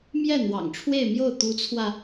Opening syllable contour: falling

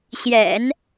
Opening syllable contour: low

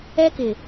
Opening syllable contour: high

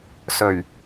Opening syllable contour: low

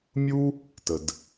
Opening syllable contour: high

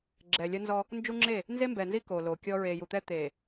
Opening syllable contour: low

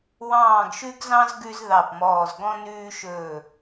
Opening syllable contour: falling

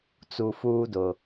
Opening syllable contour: low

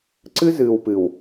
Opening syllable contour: high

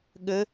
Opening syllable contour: rising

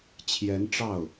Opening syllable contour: rising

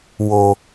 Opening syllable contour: high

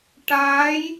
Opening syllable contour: rising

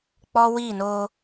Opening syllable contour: high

